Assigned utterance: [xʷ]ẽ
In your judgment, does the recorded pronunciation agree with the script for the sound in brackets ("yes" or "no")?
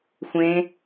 yes